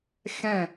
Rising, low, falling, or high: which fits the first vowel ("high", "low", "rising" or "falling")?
falling